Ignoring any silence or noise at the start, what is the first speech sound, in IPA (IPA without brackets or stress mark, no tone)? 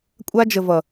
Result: kʷʼ